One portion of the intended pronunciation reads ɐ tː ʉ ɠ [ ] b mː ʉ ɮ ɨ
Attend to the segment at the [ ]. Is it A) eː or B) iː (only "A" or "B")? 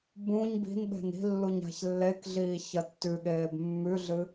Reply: A